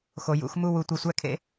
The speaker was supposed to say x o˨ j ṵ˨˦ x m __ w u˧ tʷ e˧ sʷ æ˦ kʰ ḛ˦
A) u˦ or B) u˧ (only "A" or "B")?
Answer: A